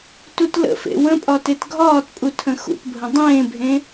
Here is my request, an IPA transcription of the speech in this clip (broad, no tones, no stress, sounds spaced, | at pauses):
t u t l ə̰ f ḛ w ə̃ pʼ ɒ t e t ɡʱ ɒː t pʼ u tʰ ə̃ x ṵ t bʱ ə̃ dˤ ẽː bʱ ẽ